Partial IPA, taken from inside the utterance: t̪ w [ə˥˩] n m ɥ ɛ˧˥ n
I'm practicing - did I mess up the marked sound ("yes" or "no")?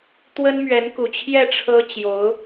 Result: yes